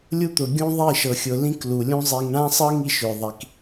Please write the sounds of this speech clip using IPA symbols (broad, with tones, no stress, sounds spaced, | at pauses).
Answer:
lʲ u˦ t̪ ʊ˨ ɡʲ ũ˦ ðˤ i˦˨ ʃ ɤ˨ xʲ ʊ˨ l ĩ˦ k l u˨ lʲ ũ˦ zˤ i˨ ŋ ɳ ã˦ sˤ ɤ˦ ŋ i˦ ʃ ʏ˨ ðˤ i˨ k